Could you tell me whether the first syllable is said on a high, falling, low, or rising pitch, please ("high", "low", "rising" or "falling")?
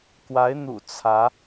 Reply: rising